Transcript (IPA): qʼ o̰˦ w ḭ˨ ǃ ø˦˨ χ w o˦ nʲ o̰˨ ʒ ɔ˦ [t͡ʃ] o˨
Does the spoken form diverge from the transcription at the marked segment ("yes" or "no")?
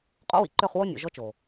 no